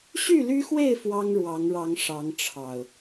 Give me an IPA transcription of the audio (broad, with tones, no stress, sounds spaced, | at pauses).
ɕ y˥˨ l y˦ x w e˥˨ ɪ̯ f w ɑ˦ ŋ ɻ w ɑ˨˦ ŋ ɻ ɑ˨˦ ŋ ʂ ɑ˨˦ ŋ ʈ͡ʂʰ ɑ˨˩ ʊ̯